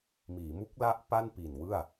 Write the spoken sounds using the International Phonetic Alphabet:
miː˩˦mu˦˥k̚la˦˥ʔ pa˥˩npi˨˩n wɯ˥˩a̯

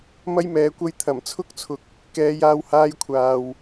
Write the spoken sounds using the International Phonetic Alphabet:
mɐ˥jmɛː˨˧kʷɐ˥j t̪ʰɐ˨˩mt͡sʰʊ˥k̚t͡sʰʊ˨k̚ | kɛː˨˧jaː˧w haː˧jkʷʰaː˨w

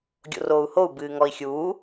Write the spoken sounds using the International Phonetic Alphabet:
ɡʲo̰roːu̯hou̯ bɨːŋɔi̯xʲuː

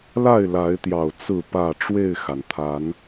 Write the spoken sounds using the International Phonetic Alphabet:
la˥˨ɪ̯la˨˦ɪ̯t̪jɑ˨˩ʊ̯ t͡sɹ̩˥˨pä˥˨ ʈ͡ʂwe˥˨ɪ̯xa˩nt̪ʰa˨˦n

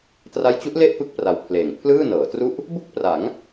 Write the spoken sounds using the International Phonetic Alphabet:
tra˦˥jt͡ɕu˦˥ʔ le˥˩ʔpɯ˦˥k̚ pra˧wpʰleː˨˩ŋ pʰlɯː˥˩nɤː˩˦tru˥˩ʔ | bu˥˩k̚pra˩˦ŋ

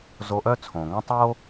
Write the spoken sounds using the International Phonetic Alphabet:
zo˧ʔœ˥ t͡sʰõː˩ŋõ˥ tˤoː˥

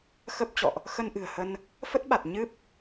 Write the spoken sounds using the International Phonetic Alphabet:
xə˦˥p̚t͡ɕɔ̰˧˨ʔ | xə˧nʔɨ̤˨˩ə̯hə˧n | fə˦˥t̚ɓa˨˩t̚ ɲɨ˦˥p̚

